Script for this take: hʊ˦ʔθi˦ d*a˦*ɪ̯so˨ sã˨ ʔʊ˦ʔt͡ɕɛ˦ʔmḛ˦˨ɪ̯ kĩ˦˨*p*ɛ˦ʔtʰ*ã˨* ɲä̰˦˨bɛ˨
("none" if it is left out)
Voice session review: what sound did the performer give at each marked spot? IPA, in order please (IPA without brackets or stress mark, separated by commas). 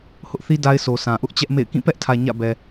a˦, p, ä˨